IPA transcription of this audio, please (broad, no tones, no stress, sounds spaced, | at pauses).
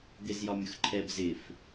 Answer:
d̪ ɪ z j ɒ mʲ ʊ x ǃʰ ɛ b z ɪ f